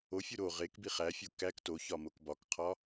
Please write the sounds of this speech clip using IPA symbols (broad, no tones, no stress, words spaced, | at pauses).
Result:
ofʲu ɾo ʁek biχæfʲo kæk toçɒ mokbɒkqʰɒ